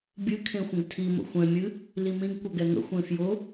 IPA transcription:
bʲ ɨ kʰ ẽ xʷ ə̃ ɡ tʰ i m ə̰ xʷ ɛ̃ mʲ ɨ | l i m ĩ ɡ kʷ ə ɡ ɛ ŋ ə̰ xʷ ẽ f j ʊ

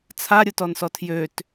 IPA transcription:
t͡sʰ a ɾʲ ʊ t ɔ n s ɔ tʰ j ø t

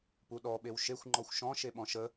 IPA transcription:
p u ɗ ɔ ɓ e w ʃ e xʷ ŋ͡ǃ ɔ xʷ ʃ ɔ̃ ʃ e ɓ ɔ̃ ʃ ə

